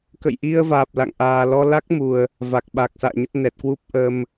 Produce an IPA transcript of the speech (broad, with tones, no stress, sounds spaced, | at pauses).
k ə̰˧˨ j ʔ i˧ ə̯ v aː˨˩ p̚ l a̰˧˨ ŋ ʔ aː˨˩ l ɔ˧ l a˦˥ k̚ m u˨˩ ə̯ | v a˨˩ k̚ ɓ a˨˩ k̚ s a̰ː˧˨ ɲ ə˦˥ t̚ n ɛ˨˩ t̚ k w u˦˥ p̚ ʔ ə˧ m